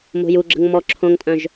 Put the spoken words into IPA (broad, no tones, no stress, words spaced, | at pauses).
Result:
mo̤juɡ͡ǁə̤ŋ mɔ ǁʰõŋtʼœ̃ʒ